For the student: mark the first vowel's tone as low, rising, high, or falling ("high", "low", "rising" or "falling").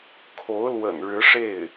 rising